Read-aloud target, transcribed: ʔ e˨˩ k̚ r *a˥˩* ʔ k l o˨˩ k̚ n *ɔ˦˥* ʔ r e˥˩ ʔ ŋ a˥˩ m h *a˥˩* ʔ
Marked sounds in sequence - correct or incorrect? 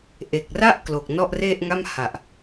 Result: correct, incorrect: ɔ˥˩, incorrect: a˨˩

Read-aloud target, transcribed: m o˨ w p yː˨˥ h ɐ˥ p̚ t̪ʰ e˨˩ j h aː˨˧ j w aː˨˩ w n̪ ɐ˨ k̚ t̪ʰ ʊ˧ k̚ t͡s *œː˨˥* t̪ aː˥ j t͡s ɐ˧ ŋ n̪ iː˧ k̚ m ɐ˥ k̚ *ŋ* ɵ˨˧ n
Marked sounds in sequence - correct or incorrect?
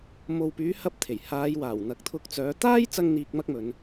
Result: correct, incorrect: m

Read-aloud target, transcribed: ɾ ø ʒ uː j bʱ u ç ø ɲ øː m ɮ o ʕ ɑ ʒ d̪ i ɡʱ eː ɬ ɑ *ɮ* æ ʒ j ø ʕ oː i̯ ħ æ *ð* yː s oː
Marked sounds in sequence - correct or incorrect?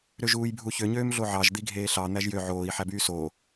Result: incorrect: n̪, incorrect: b

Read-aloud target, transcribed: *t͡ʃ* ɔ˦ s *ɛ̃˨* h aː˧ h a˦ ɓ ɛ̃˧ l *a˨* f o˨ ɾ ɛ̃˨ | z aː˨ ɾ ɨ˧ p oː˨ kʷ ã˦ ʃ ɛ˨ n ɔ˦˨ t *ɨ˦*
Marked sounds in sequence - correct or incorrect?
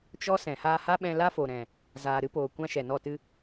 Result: correct, correct, incorrect: a˦, correct

